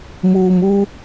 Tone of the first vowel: low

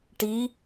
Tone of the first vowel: rising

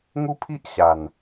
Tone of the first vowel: high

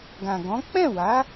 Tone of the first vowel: low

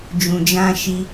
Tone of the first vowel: low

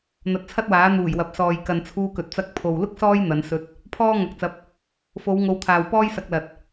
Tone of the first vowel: rising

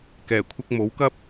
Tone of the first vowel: low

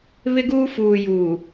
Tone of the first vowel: high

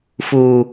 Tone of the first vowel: low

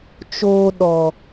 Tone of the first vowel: high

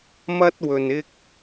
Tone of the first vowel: high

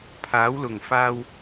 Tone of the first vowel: rising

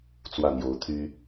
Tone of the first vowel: falling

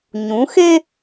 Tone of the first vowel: rising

